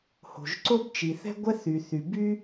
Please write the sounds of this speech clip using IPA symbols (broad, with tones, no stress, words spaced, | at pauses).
ho̤˩ʒǀo˥bt͡ʃi˩ θɛ̤˥ɡʷɛ˥ θy˩ θy˩by˥